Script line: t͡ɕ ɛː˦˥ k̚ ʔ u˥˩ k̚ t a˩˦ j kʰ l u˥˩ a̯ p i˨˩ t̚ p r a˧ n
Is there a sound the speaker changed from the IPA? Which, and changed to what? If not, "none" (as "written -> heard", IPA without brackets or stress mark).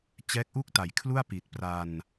none